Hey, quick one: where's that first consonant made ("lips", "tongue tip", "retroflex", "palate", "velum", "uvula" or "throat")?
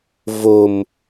lips